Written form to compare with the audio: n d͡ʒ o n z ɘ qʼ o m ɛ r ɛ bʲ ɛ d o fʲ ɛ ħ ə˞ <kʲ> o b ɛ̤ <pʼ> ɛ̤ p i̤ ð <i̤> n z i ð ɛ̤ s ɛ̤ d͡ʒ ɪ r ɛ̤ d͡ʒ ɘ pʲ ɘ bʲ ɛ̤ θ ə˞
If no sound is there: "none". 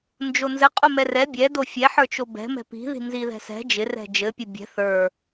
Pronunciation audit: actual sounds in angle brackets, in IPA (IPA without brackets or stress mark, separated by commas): t͡ʃ, m, i̤